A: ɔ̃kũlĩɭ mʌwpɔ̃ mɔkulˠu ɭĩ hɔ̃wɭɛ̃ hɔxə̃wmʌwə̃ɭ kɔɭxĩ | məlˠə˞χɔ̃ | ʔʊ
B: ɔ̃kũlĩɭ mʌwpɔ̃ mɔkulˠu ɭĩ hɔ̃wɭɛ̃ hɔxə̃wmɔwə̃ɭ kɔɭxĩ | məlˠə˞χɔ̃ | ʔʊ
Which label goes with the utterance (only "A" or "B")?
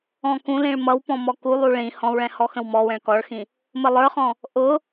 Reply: B